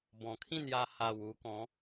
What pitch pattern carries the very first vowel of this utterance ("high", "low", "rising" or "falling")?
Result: low